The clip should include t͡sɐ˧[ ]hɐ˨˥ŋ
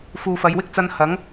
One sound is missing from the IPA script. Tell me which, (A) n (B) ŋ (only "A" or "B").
A